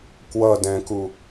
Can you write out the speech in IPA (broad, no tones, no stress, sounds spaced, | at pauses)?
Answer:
k w ʌ d ɛ̃ k u